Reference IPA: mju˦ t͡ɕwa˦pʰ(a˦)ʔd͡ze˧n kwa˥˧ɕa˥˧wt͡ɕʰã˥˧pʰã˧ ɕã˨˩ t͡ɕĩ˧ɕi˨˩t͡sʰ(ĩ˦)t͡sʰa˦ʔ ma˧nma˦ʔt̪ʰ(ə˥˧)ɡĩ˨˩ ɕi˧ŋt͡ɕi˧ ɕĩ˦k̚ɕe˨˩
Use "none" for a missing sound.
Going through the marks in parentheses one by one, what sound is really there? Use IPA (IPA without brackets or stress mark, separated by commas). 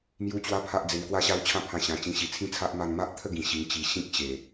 a˦, ĩ˦, ə˥˧